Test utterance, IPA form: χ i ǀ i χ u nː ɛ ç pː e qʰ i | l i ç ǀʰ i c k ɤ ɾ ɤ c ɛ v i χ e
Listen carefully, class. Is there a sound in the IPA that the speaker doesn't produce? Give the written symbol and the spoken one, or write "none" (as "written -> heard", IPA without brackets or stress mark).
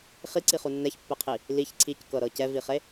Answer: none